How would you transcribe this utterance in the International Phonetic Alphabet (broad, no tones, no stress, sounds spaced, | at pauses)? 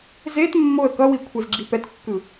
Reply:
z e t mː o ə̯ k ʌ w i kʷʰ e z ɡ͡ǁ i p ɛ t kː ɯ